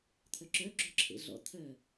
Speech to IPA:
t̪ʰ œ ǁ œ ǁ o̤ ǁʰ ḛ ɮ ɔ̰ t̪ʰ œ

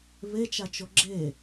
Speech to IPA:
β e t͡ʃ a t͡ʃ o ɡ͡ǁ e

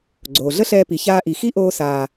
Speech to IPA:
ɡ͡ǀ oː˨ ɮ ə˦ ɬ ɛː˧ p i˨ ç aː˧ ʔ i˨ x i˦ ʔ oː˧ s aː˨

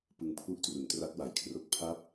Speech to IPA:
p ɯ˧ ŋ pʰ u˥˩ ʔ t r u˩˦ n t r a˦˥ t̚ w a˩˦ j kʰ r o˦˥ k̚ pʰ a˥˩ p̚

